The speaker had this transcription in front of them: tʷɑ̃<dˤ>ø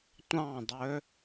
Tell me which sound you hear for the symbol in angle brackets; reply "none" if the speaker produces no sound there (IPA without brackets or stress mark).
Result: dˤ